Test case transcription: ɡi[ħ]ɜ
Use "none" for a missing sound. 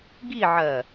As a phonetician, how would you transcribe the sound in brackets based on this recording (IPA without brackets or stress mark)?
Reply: ʕ